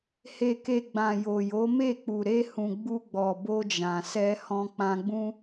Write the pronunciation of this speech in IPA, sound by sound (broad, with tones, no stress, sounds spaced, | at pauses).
h e˨ k e˨ ɡ͡b ã˨ j o˨ j o˨˦ m e˦˨ k͡p u˨ ɾ e˧ h ũ˨ ɡ͡b u˧ ɡ͡b ɔ˨ b o˧ d͡ʒ ã˨ s ɛ˧ h ɔ̃˧ k͡p ã˧ ɡ͡b ũ˦